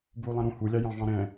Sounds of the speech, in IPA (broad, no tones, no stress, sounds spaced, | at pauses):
b u lˠ ɛ̃ ɾ ũ h u lʲ ɑ j ɑ̃ v ɑ̃ ɾ ɛ̃